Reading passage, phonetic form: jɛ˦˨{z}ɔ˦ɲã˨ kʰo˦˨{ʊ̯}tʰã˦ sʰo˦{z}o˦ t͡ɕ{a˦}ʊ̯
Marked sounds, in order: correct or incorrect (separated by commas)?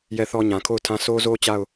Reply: incorrect, correct, correct, incorrect